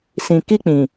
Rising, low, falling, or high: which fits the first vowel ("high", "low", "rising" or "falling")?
low